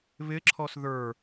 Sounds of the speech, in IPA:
βɪǁʰɔs ðə˞

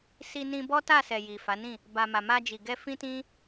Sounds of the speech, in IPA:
si˧nĩ˧ bɔ˦ta˦˨sɛ˨ ji˨fa˨˦nĩ˦˨ | ba˧ ma˨ma˧d͡ʒi˨ɡɛ˧ fĩ˦tĩ˦

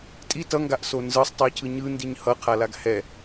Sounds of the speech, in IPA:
tʼi tʌŋɡaʔso nzɯsˤtˤɛcʰɯ ɲɯndiɲ hʌqʰalaɡ hɛ

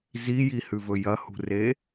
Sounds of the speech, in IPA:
zijihʉvɵ jɐhṳre

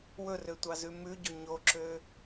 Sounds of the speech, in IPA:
wɵrøtʷɑzʉ mʉɟo ɲoǁø

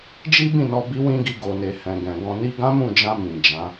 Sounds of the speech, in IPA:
d͡ʒi˦bĩ˦˨ nɔ˧bi˦wĩ˦ɡi˧ ɡo˨ne˨hɛ̃˨ ɡɛ̃˨ɡɔ̃˧ ni˧ɡã˦mũ˦˨d͡ʒã˧ mĩ˨d͡ʒã˨˦

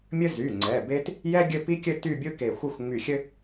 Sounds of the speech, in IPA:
mʲɘ˥zy˩˧˩ŋ͡ǀɛ˩˧˩ be˥t | jɛ˥ ɡʲɘ˥˧pi˥kʲɘ˥˧ ty˥˧bʲɯ˥ke˧˩xʷɘ˥˧xʷ ŋ͡my˧˩xʲɘ˥

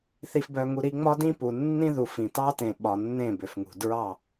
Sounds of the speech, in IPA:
θi˨fbœ˨ŋu˨ ɾi˨ ŋ͡mɒ˦dĩ˦pu˨ nːĩ˦ðu˨fĩ˨tɑ˦ tẽ˨ɓɒ˨ nːẽ˦˨bʏ˨fŋṳ˨ dɹɑ˦˨

